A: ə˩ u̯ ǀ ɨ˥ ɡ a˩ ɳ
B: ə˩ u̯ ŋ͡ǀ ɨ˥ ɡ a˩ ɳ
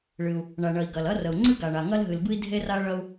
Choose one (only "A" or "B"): B